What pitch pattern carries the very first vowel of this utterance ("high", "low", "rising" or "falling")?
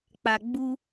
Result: low